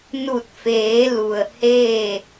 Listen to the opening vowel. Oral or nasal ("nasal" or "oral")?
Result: oral